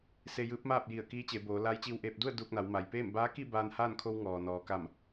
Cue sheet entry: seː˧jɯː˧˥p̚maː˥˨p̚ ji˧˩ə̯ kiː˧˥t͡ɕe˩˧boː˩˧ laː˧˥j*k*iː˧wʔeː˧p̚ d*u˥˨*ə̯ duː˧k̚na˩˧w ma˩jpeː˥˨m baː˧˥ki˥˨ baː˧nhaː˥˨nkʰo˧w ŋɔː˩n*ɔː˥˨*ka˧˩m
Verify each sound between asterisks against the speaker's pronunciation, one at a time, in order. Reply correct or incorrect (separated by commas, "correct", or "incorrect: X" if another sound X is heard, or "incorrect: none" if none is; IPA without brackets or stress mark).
incorrect: t͡ɕ, correct, incorrect: ɔː˩